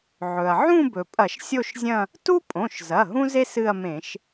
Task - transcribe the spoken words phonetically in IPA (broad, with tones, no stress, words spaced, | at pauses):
ʕɵ˩ɐ̯ ʕũ˥˧bɵ˩pʼɐ˧˩˧ʃ sʲo˥˧ʃzʲɐ̃˥˧ | tu˥pʼõ˩˧˩ʃzɐ˩˧˩ ɦũ˥ze˥ sɨ˥˧ɐ̯ mẽ˧˩˧ʃ